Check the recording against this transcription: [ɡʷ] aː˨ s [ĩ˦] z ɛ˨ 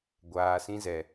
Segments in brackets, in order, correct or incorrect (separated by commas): correct, correct